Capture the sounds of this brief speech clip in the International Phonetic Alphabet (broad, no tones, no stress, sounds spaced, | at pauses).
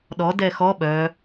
ɗ ɔ d ɛ x ɔ ɓ œ